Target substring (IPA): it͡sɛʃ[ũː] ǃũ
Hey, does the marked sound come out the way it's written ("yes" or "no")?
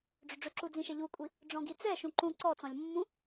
no